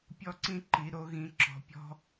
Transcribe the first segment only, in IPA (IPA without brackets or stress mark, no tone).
pʲ